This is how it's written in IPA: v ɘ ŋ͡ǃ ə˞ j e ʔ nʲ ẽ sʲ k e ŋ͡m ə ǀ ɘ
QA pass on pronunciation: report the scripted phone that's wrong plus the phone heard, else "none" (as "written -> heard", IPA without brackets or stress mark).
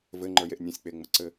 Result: k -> k͡p